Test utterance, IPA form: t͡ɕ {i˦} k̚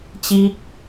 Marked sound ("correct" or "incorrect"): correct